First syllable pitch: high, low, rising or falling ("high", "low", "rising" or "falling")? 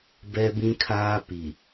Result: high